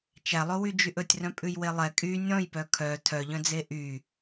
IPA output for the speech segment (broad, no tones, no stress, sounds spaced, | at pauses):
t͡ʃ æ lˠ o w y d͡ʒ y ʔ ɵ tʲ r œ̃ pʼ ʉ j w e lˠ ɛ kʼ y nʲ ɔ̃ j p œ kʰ œ tʰ œ ʎ œ̃ d͡z e ʔ y